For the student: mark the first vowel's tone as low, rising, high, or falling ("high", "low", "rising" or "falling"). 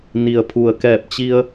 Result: low